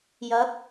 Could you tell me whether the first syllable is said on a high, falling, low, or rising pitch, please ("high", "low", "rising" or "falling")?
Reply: rising